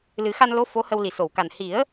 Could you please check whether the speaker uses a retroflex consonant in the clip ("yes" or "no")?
no